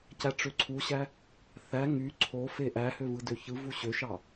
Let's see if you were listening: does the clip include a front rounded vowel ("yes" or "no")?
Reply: yes